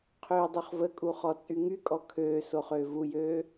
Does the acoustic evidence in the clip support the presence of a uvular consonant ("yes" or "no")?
yes